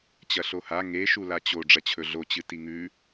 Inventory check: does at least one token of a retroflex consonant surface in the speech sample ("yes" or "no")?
yes